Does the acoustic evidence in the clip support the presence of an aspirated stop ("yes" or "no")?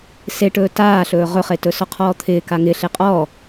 yes